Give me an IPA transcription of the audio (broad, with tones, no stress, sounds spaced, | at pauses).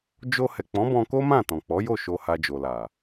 d͡ʒ o˧ h ɛ˨ k͡p ɔ̃˨˦ b ɔ̃˧ k o˦ m ã˦˨ t ɔ̃˨ k͡p ɔ˨˦ j o˦˨ ʃ o˧ h a˧ d͡ʒ o˨ l a˨